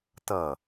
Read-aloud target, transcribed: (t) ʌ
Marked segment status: correct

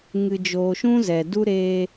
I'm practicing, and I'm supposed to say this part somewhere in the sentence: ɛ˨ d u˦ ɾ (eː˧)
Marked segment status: correct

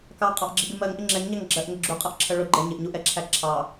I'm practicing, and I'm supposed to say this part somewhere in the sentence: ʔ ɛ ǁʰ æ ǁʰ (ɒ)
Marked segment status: incorrect: ɑ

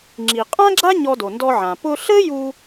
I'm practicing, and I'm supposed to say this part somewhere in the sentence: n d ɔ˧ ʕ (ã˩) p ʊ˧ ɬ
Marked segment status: correct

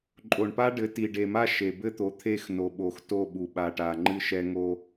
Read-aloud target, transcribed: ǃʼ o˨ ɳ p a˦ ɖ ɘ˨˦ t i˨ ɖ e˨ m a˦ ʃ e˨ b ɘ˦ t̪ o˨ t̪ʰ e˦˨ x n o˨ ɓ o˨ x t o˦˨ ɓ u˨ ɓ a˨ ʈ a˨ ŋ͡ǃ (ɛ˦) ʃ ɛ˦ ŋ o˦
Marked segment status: incorrect: ɨ˦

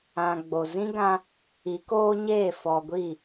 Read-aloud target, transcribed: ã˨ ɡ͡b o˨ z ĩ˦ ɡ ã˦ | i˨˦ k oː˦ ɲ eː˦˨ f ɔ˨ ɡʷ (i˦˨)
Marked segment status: correct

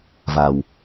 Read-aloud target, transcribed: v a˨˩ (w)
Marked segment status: correct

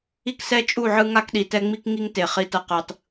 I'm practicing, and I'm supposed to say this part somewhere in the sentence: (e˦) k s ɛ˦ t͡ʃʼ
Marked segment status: incorrect: i˦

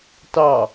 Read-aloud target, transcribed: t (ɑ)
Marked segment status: correct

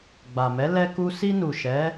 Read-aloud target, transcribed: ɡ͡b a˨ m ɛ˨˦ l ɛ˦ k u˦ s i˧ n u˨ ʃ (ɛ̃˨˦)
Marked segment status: incorrect: ɛ˨˦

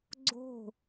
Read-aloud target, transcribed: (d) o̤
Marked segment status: incorrect: ɡ͡ǀ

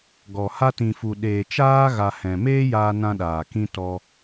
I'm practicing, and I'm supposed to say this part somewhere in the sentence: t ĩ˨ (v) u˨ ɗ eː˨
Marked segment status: incorrect: f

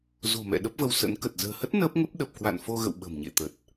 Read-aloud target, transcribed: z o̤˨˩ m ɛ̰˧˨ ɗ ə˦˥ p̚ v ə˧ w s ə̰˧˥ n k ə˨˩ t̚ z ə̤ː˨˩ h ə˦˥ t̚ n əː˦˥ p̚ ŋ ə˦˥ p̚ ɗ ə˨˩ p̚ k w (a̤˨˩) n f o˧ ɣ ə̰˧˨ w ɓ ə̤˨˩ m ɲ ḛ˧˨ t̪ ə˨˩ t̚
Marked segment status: incorrect: a̰˧˨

